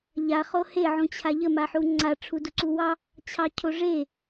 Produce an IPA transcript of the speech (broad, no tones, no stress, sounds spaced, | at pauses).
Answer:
ʎ a χ o h e ʕ ũ t͡ɕʰ a ʎ ə m a ħ u ŋ͡ǀ a ʈ͡ʂʰ u d u ǀ u w ɑ | t͡ɕʰ ɑ cʰ o ʐ e